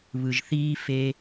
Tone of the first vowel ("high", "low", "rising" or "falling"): low